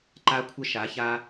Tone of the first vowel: high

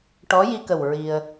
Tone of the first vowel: rising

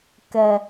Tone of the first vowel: low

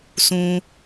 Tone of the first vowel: high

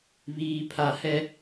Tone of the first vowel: high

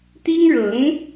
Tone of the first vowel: high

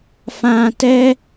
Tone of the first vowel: low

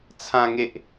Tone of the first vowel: low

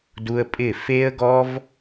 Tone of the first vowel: high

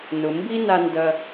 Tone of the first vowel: low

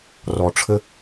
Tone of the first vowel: low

